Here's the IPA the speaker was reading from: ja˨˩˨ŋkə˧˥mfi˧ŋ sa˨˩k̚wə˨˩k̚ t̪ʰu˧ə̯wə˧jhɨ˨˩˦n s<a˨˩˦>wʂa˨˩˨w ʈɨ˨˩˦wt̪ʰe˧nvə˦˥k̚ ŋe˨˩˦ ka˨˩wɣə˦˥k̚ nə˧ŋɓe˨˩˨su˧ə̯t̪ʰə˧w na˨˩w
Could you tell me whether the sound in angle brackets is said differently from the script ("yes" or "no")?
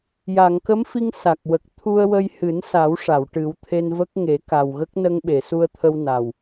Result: no